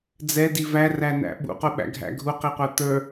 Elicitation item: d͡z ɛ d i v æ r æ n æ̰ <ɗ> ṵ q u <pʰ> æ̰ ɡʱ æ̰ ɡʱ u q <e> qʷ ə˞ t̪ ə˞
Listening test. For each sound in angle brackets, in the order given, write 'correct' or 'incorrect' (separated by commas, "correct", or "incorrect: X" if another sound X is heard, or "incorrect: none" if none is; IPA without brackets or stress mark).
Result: incorrect: ɓ, incorrect: ɓ, incorrect: i